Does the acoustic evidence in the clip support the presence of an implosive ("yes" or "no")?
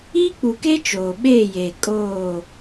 yes